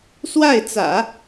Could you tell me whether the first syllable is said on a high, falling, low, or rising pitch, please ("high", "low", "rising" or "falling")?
falling